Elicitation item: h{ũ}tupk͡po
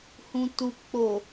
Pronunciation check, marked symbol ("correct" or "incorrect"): correct